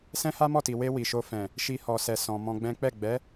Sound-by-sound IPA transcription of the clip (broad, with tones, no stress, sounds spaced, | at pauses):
s ɛ̃˦ h a˦ m ɔ˦˨ t i˨ w e˧ w i˨ ʃ o˧ f ɛ̃˨ | ʃ i˧ h ɔ˨ s ɛ˨ s ɔ̃˨ m ɔ̃˧ ɡ͡b ɛ̃˦ k͡p ɛ˦˨ ɡ͡b ɛ˨˦